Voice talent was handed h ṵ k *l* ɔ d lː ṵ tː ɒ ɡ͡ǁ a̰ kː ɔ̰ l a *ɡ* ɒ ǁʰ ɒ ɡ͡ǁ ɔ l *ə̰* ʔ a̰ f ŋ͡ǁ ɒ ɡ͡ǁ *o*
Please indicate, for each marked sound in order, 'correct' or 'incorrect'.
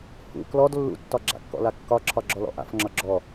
correct, incorrect, incorrect, incorrect

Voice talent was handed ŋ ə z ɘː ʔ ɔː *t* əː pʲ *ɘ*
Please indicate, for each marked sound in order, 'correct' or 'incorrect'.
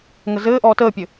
correct, correct

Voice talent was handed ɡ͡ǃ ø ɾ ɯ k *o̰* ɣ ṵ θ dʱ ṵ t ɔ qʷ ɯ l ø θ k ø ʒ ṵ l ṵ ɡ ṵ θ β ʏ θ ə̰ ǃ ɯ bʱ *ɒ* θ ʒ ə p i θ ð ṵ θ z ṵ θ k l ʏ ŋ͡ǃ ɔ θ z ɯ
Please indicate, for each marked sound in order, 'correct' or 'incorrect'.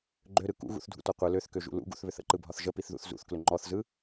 incorrect, correct

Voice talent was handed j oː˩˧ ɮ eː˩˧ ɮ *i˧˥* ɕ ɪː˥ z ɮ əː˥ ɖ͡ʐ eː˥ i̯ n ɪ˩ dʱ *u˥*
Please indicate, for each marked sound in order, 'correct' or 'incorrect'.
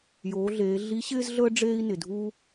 correct, correct

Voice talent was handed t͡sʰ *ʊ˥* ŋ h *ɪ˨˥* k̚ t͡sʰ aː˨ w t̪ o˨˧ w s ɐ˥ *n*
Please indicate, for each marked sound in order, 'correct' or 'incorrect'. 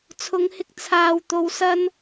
incorrect, incorrect, correct

